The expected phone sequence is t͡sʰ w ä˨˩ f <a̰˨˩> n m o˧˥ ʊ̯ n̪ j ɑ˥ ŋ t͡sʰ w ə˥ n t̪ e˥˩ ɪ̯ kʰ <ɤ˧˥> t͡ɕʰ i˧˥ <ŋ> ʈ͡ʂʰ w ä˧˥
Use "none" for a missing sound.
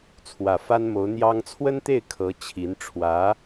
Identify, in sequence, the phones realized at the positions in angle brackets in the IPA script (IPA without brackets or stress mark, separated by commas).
a˥, ɤ˧˥, n